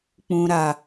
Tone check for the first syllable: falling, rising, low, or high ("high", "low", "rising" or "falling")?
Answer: low